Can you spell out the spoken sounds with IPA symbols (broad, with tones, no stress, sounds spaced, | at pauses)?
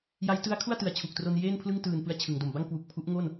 j a˦˥ j t ɯ˦˥ a̯ kʰ u˥˩ a̯ t ɯ˩˦ a̯ t͡ɕʰ u˨˩ k̚ t r o˧ n j eː˥˩ n pʰ l ɯ˥˩ ŋ t ɯː˨˩ n p ɯ˦˥ a̯ t͡ɕʰ ɯ˩˦ ŋ d o˨˩ m b a˥˩ ŋ k w u˨˩ k̚ pʰ u˦˥ ʔ ŋ o˥˩ n